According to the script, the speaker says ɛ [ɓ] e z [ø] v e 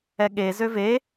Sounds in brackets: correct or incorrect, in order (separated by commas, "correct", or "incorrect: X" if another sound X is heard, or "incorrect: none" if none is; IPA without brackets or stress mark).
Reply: incorrect: ɠ, correct